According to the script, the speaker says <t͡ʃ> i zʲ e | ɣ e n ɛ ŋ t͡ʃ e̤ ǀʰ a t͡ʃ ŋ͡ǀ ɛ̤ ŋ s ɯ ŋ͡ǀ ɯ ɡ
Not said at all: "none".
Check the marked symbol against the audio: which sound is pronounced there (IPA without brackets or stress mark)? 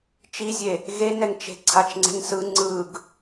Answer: t͡ʃ